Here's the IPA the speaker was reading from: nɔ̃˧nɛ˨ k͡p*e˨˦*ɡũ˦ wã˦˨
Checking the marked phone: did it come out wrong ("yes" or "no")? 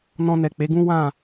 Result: no